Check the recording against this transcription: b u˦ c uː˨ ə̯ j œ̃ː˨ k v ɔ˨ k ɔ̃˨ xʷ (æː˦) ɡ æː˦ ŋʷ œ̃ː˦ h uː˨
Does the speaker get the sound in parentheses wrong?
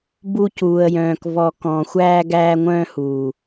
no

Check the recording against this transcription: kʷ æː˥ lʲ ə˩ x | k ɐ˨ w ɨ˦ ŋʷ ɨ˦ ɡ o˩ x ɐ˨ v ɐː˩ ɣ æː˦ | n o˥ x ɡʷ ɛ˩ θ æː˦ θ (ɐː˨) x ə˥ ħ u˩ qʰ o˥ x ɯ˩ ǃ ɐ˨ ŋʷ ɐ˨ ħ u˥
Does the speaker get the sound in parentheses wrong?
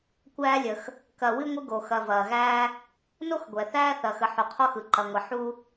no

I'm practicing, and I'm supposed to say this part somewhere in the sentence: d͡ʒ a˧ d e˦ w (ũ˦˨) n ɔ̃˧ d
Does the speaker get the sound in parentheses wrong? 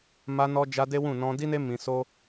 no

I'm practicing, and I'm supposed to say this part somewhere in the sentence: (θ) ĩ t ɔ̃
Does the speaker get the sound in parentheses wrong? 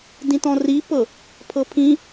yes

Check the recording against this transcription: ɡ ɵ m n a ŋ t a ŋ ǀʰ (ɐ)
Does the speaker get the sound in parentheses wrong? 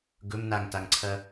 no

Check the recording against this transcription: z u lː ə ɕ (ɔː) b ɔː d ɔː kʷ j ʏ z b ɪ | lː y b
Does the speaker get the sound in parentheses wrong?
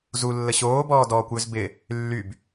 yes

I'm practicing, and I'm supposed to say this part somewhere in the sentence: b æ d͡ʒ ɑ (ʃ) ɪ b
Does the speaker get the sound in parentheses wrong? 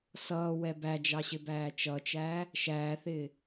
yes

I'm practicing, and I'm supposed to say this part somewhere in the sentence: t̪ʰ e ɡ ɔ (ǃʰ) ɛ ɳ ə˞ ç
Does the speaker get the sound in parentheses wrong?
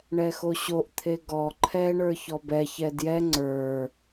no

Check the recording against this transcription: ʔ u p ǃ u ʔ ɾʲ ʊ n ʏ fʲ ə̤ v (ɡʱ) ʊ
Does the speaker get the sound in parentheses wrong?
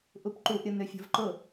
yes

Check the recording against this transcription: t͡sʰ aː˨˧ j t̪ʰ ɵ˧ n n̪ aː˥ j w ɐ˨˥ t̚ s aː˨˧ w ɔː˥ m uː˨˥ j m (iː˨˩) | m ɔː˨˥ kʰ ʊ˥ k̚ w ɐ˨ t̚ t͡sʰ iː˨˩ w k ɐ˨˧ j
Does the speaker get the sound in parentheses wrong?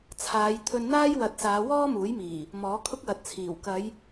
no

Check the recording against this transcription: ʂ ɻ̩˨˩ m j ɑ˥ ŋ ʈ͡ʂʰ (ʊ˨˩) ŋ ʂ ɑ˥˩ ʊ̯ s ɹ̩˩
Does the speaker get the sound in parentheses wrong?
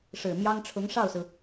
yes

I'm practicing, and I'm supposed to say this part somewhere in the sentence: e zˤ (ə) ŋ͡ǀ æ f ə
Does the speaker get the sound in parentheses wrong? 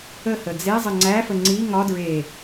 no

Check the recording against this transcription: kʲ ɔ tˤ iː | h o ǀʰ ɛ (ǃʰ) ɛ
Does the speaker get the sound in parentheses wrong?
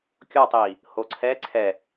yes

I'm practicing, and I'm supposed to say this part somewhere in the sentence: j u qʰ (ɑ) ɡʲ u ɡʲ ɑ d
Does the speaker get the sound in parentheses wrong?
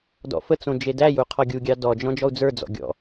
yes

